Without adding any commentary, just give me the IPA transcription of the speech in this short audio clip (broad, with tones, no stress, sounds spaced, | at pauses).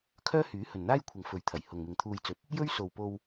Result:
kʰ œː˥ h yː˨˥ h ɵ˨ n n̪ aː˥ j kʷʰ ɐ˨ ŋ f ɵ˨˥ ɥ t̪ʰ ɐ˨˩ j h ʊ˨ ŋ m ɪ˨ ŋ t̪ʰ uː˧ j t͡s ɵ˨˥ t̚ | j ɵ˥ ɥ s o˨ w p o˧ w